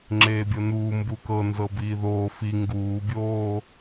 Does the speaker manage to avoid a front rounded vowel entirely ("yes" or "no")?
yes